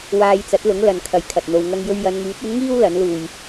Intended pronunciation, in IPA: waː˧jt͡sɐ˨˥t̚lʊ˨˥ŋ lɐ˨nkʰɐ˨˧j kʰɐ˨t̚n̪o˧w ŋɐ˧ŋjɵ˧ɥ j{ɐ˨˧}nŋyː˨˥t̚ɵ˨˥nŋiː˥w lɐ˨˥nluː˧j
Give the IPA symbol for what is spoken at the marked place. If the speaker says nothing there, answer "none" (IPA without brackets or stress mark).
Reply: ɐ˨˧